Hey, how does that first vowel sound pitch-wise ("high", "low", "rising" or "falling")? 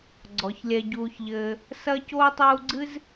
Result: low